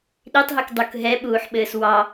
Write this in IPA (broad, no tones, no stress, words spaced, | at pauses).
ɗitˤɦʉk dˤuk ɦɛɓuːħɓɘːs wɑ